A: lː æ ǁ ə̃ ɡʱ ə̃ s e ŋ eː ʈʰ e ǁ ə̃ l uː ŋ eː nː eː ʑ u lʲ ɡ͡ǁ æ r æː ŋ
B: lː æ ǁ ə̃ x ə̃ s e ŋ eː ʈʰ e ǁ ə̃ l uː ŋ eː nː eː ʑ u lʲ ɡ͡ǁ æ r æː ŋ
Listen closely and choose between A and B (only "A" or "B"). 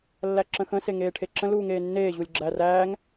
B